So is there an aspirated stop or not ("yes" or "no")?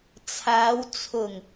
yes